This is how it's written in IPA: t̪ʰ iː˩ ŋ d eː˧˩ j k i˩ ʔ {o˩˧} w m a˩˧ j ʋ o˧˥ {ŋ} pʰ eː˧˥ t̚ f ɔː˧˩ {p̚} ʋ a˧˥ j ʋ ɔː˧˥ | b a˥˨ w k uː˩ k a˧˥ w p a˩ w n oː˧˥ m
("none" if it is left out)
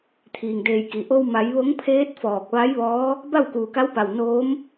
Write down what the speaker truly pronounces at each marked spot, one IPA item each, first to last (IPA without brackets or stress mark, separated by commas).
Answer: o˧, ŋ, k̚